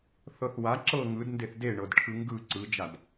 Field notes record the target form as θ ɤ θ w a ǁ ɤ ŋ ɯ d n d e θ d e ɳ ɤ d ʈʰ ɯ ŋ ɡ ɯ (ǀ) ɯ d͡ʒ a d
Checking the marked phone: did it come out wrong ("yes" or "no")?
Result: no